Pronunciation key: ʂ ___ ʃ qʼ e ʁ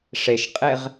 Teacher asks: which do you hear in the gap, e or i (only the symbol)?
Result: e